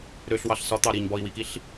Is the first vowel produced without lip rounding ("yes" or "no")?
no